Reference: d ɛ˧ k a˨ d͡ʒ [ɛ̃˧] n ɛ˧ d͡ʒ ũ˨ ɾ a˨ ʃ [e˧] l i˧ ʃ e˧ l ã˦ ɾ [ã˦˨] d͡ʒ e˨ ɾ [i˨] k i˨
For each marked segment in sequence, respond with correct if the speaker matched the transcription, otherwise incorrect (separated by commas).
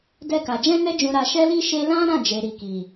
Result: correct, incorrect, correct, correct